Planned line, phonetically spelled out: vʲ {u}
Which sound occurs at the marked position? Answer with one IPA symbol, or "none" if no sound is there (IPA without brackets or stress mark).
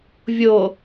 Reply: o